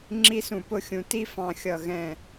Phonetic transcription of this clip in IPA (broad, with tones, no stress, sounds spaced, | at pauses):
ŋ͡ǁ i˥˧ s ũ˧˩ p ʊ˥˧ xʲ ũ˧ t i˥ f ɑ̃˧ xʲ ʌ˧˩ ɣ ɛ̃˧˩